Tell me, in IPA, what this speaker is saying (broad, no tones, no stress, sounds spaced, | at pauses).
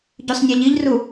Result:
ɟ ʉ sˤ nʲ a ʎ i ʎ r u